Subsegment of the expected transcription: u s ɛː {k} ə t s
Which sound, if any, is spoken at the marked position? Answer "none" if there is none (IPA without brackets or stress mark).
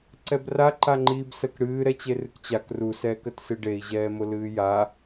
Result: k